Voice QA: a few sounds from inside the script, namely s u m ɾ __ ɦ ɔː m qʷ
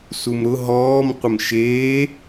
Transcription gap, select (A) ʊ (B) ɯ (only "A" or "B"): A